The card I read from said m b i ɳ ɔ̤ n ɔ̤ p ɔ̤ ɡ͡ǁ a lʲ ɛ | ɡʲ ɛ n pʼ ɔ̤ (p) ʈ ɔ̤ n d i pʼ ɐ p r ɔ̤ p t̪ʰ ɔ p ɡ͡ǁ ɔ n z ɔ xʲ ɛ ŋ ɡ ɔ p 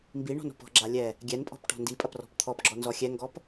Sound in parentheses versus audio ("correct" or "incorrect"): correct